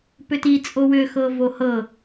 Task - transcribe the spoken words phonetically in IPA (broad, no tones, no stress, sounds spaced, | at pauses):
p ʏ t i t͡sʼ o w ʏ x ɤ v o h ɤ